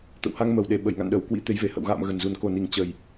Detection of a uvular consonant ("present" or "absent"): absent